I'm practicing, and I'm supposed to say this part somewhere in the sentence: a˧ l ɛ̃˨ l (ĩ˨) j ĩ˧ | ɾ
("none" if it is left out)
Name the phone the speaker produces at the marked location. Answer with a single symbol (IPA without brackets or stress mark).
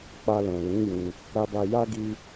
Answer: ĩ˨˦